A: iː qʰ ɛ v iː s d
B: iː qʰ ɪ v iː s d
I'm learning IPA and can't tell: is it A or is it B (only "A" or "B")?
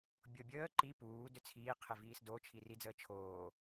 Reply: B